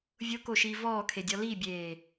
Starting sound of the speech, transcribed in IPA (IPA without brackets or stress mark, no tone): vʲ